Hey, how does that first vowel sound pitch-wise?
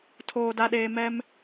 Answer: low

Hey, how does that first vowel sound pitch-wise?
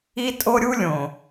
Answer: high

